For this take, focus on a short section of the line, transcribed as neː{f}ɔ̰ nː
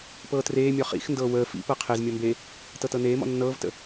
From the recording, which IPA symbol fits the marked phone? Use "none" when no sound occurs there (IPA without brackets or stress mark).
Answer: m